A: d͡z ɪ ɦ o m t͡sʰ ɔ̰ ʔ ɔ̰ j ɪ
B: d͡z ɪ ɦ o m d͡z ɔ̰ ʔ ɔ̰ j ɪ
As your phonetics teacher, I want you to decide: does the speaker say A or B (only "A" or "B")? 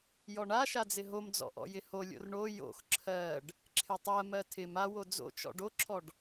B